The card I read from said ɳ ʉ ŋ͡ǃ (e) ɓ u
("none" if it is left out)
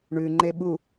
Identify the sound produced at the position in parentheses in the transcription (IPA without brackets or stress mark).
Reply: e